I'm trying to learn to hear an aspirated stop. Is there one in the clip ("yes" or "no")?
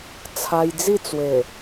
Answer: yes